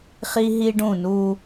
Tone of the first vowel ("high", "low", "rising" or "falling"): high